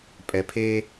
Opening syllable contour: low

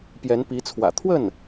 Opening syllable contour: rising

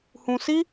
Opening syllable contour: high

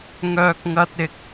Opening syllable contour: high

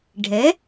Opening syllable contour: rising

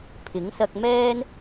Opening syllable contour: rising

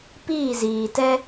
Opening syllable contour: falling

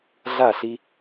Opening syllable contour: falling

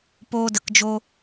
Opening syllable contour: high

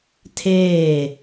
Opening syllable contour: falling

